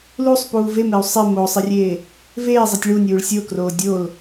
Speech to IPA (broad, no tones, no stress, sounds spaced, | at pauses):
l u sˤ p uː v e m e u̯ sˤ e m o sˤ i rʲ eː | v eː zˤ i tʲ ɭ u nʲ uː ɭ sʲ o k r oː dʲ o l